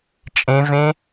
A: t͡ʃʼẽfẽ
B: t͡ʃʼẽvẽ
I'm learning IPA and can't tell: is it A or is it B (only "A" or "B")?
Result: B